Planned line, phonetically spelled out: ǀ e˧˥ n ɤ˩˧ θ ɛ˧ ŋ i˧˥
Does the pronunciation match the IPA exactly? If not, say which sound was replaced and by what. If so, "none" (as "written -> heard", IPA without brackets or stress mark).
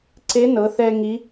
none